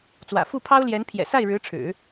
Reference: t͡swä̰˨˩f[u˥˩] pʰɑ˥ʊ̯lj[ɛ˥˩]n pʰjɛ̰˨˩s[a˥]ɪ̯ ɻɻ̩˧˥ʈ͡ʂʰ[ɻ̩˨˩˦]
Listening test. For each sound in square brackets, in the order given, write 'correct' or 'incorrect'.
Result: correct, incorrect: ɛ˧˥, incorrect: a˥˩, correct

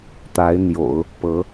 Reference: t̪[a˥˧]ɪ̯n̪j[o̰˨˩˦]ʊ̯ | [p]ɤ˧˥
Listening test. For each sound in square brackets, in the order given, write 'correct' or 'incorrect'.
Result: incorrect: a˧˥, correct, correct

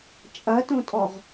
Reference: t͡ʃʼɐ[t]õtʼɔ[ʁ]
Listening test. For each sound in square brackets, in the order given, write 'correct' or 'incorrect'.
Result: correct, correct

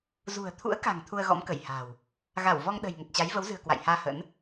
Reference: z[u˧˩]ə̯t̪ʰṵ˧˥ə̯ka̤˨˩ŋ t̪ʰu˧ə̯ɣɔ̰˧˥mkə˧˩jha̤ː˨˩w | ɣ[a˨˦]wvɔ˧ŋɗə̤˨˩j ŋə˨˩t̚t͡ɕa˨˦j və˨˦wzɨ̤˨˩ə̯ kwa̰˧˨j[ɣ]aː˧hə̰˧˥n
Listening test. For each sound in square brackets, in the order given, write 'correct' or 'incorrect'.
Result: incorrect: ṳ˨˩, incorrect: a˧˩, incorrect: h

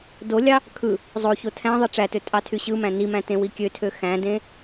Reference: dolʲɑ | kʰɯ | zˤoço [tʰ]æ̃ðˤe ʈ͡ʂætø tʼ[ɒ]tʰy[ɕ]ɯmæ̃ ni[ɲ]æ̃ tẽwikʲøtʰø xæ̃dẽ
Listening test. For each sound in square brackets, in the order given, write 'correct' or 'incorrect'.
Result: correct, incorrect: ɑ, correct, incorrect: m

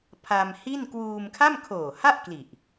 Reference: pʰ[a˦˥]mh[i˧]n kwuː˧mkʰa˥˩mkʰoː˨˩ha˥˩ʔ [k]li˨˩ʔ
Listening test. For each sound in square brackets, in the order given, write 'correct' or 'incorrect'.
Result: incorrect: a˧, incorrect: i˥˩, correct

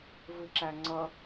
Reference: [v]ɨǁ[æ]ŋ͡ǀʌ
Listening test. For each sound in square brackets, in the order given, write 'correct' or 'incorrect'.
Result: correct, correct

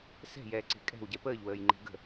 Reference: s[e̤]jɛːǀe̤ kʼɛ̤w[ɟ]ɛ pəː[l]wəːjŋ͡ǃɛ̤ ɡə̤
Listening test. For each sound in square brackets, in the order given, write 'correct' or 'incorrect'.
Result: incorrect: ɛ̤, correct, incorrect: ʎ

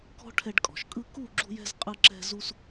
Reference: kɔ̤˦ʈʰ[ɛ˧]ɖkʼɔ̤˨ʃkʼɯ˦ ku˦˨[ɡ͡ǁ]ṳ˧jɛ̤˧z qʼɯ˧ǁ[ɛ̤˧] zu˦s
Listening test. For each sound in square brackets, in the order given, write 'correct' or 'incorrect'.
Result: correct, correct, correct

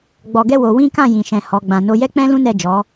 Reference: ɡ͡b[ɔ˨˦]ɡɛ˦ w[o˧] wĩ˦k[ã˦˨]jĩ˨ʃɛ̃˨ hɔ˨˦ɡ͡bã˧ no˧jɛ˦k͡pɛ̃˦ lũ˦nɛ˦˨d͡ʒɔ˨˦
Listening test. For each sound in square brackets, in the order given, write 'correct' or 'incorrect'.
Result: incorrect: ɔ˧, correct, correct

